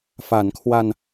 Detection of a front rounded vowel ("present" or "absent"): absent